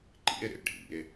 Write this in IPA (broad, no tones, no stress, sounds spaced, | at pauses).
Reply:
ǃ ḭ e̯ ɾ ḛ ɖʱ ḭ e̯